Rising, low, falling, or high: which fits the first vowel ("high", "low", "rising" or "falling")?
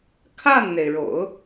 falling